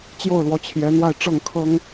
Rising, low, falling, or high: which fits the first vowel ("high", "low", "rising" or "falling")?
falling